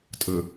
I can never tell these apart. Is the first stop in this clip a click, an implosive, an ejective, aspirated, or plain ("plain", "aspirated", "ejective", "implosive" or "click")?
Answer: ejective